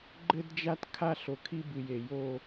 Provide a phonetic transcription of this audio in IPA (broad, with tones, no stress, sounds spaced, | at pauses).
ɡ͡ǃ ɘ˦ d d͡ʒ a˦ t kʰ a˦ ɬ o˨ kʰ i˦ b ɨ˨ j e˨ j o˦